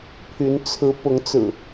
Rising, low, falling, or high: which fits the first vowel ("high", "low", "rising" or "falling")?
rising